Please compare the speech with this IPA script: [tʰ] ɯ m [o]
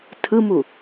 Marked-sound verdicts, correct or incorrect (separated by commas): correct, incorrect